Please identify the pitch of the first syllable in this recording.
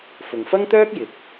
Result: low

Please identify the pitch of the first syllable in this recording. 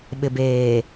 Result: low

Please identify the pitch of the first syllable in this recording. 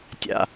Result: low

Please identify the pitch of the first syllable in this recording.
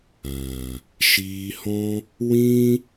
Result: low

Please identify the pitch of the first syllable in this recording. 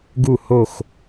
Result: falling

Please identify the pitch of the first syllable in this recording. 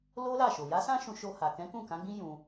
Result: high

